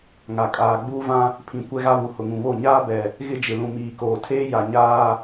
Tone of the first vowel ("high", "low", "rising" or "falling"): low